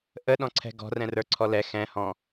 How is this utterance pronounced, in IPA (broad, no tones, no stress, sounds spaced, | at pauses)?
ʔ ə ɗ ɔ̃ ǀʰ ɛ̤ ɡ ɔ̤ r ɛ̃ r ə˞ ǀʰ ɔ l ɛ x ɛ̃ h ɔ̃